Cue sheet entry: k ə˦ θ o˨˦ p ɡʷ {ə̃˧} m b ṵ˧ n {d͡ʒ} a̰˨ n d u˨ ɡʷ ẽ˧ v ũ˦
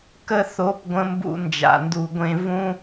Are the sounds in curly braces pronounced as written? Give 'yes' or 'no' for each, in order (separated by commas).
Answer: yes, yes